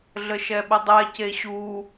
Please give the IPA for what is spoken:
ɮ ə ʃ ɛ ɓ ə dˤ ɛ c e ɕ u

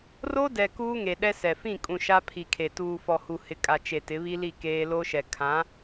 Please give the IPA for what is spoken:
r o˦ d ɛ˨ k uː˦ ŋ e˨ ɗ ɛ˦ s ɛ˨ f ĩ˦˨ kʼ ũ˨ ʃ a˦ pʰ i˨ kʰ e˨ t uː˨ f ɔ˨ h u˨ h ɪ˨ kʼ a˨ t͡ʃ e˨ t ɪ˨˦ β i˦ l i˦˨ k eː˦ l o˦ ʃ ɛ˨ kʰ ã˨˦

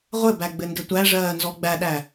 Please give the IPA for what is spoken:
ʁʷ ɘ b æ ɡ͡b ɘ n d ɘ tʷ æ ʐ ɜː n z ɔ ɡ͡b æ ɗ æ

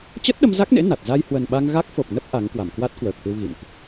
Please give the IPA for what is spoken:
t͡ɕ ə˦˥ t̚ ɗ ə˧ m z a˦˥ k̚ n ḛ˧˥ n a˨˩ t̚ z a˧ j h w ə˨˩ n ɓ a˧ ŋ ɣ a˦˥ k̚ f o˨˩ p̚ n ə˦˥ p̚ ʔ a˨˦ ŋ k w a˧˩ m k w a˦˥ t̚ k w əː˨˩ k̚ f ɨ˧ w ɣ ḭ˧˨ n ʔ

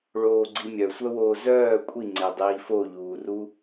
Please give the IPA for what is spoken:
ɭ oː ɡ͡ǀ i mʲ œ sʷ œ w oː z œː kʷʼ i ŋ͡ǀ e dˤ iː f o ʎ uː r u

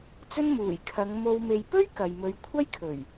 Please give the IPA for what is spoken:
t͡s ɵ˥ n m uː˨˩ j kʰ ɐ˨˧ ŋ m o˨ w m e˨ j p ɵ˥ ɥ k ɐ˨ j m ɵ˨˧ ɥ kʷʰ ɐ˥ j kʰ ɵ˨˩ ɥ

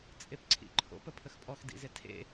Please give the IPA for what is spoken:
t͡sʼ e p ǀʰ ḭ ǃʰ o̰ p ə pʰ ə x pʼ ɔ x d ḭ z e tʰ ḛ

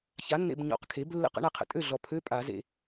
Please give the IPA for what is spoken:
ç a˩˥ nː ḛ˨ b ɲ ɔ̰˨˩˦ q kʰ e˩˥ b lː ə̰˧˥˧ q ə̰˩˥ ɳ a˨ qʰ ə̰˨ tʼ ø˥˩ ɮ ɔ˨ pʰ ø˧˥˧ pʼ a˨˩˦ z ḛ˨

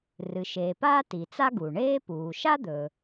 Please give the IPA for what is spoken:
r ɨ˩ ʃ eː˩ p aː˥ t i˩ t͡s a˥ ɡ u˩ ɳ eː˥ p uː˩ ʃ a˥ d̪ ɵ˩

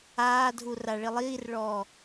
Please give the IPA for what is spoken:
aː dʱ u r a ɭ i lˠ iː r ɭ ɔː

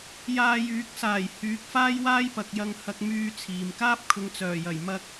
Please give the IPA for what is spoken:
j aː˧ j yː˨˥ k̚ s aː˨˩ j h yː˨˥ k̚ f aː˥ j w aː˥ j p ɐ˨ k̚ j ɐ˧ ŋ h ɐ˧ k̚ m yː˧ t͡sʰ iː˨ m k aː˥ p̚ kʰ ʊ˨˧ ŋ t͡s œː˨˩ j ɐ˨˩ j m ɐ˧ k̚

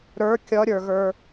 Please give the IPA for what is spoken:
ɾ ə˞ kʲ ʌ ɾʲ ə˞ ɣ ə˞

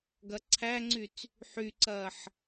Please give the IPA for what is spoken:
ɡ ɐ ǀʰ æ ŋ͡ǀ y t͡s | ħ y ǀ ɐː ħ

